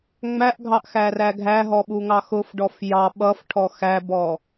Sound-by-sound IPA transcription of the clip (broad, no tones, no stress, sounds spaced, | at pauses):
ŋ͡m æ ʔ ɡʱ ɑ ʔ x æ r æ ɡʱ æ ɦ ɔ ɓ u ŋ ɑ x ʊ f ɖ ɔ f j ɑ ɓ ʌ f ʈʰ ɔ x æ b ɔ